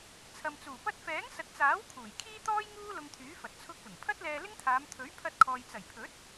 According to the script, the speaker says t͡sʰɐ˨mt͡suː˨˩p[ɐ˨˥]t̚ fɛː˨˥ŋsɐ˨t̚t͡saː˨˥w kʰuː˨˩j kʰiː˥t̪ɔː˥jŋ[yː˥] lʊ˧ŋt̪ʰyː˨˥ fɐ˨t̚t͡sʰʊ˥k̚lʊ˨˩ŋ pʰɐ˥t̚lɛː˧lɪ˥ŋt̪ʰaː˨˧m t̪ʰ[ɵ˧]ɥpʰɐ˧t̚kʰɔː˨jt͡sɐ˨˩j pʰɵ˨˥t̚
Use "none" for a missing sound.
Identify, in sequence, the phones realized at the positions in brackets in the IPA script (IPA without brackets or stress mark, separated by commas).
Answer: ɐ˥, uː˥, ɵ˨˥